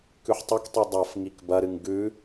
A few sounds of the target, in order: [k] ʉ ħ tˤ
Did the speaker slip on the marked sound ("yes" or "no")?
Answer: no